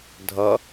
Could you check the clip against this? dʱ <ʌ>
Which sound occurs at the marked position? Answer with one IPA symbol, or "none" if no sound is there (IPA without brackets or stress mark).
ʌ